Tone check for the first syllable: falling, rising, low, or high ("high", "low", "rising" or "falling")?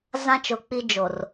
high